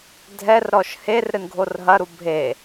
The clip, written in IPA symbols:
dʱɛrɾɔʃ her ɾɨnɡʱorɦɐɾu bʱe

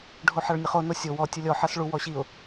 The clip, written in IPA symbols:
ɖʱoħaɭnʲəχo nosʲow ɔ tʲəlʲɔ ħasɭu wɔɕiʊ̯

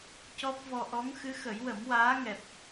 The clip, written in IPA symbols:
cɔ˦˥p̚vɔ˧ ʔɔ˧˥ŋ xɨ˧˥xə˨˩˦jwə˨˩˦m waː˧˥ŋɛ˨˩p̚

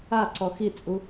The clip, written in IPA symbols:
aǀɔ xit͡sʼu

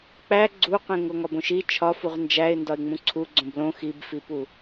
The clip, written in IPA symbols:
k͡pæ ɡ͡ǀuqẽŋ oŋɒbõʃi t͡ʃʰɒ fuʁnd͡ʒæɪ̯ndɒɪ̯ŋ͡mũ ǀʰu ɡ͡ǀõblõ xibfipu

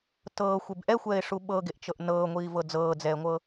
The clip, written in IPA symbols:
tɤːxʷeb ʔɛxʷɛːɪ̯ʂu ɓɤɡeʔt͡ʃɤʔ nɤːŋʷiːvɤ d͡zɤːd͡zɛːŋʷɤ

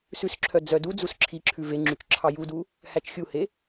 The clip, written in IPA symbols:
sʉsǁʰœ d͡zœdud͡zus ǁʰiǁʰʉ veŋ͡ǁyt͡ʃ ǁʰɑjudu | hæt͡ʃxʲuhe

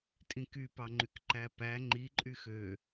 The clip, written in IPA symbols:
tʼĩkypɑŋ͡ǃyk ǃæpæ ŋ͡ǃi ǃʼyxø

